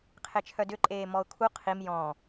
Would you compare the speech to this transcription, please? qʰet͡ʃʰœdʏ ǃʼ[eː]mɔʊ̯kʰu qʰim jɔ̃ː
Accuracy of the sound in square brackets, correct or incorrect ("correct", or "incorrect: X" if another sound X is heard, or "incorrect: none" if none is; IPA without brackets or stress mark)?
correct